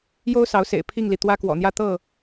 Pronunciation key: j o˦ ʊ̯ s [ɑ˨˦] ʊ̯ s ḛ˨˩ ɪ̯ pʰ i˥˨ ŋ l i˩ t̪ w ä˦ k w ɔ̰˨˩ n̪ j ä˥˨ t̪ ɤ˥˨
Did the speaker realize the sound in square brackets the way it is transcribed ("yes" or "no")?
yes